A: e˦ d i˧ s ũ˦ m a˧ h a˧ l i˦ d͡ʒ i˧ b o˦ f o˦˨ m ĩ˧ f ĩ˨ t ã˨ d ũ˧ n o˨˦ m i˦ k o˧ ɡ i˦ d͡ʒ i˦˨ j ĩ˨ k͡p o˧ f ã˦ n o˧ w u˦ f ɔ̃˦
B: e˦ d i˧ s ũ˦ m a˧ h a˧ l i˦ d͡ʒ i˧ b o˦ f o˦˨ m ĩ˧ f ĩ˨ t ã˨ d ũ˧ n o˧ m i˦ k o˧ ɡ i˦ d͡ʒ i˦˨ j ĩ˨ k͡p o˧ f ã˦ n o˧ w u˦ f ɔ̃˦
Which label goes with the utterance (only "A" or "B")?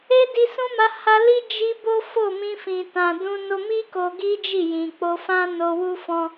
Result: B